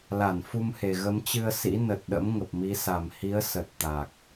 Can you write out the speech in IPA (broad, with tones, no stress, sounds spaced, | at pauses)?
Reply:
l a˧˩ n f u˧ m h e˨˩ ɣ ə˨˦ m t͡ɕ ɨ˧ ə̯ s ḭ˧˥ n ə˨˩ t̚ ɗ ə̰˧˥ m ŋ ə˨˩ p̚ m i˨˦ s a˨˩ m h i˨˦ ə̯ s ə˨˩ t̚ t̪ a˨˩ k̚